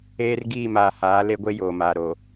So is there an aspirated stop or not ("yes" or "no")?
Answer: no